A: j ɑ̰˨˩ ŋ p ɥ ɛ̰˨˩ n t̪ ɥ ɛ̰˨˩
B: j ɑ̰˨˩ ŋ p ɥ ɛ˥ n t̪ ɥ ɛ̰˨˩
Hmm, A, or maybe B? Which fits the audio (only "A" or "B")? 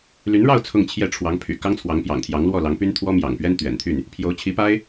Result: B